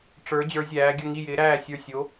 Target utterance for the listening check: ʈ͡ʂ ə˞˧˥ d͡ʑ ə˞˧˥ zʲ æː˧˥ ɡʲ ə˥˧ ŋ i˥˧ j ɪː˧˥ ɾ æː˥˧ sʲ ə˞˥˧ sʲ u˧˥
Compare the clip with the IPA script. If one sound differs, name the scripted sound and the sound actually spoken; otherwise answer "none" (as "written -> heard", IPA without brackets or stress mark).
u˧˥ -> o˧˥